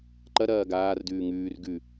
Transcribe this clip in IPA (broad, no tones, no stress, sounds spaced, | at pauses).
ǃ ɐ ɾ ɐː ɡ aː r d ʉː ŋ ʉː r ɡ ʉ